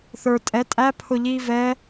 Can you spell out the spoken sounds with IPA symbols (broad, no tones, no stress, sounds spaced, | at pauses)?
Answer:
θ ə˞ tʼ ɛ tʼ æ pʰ ʊ ʎ iː v ɛ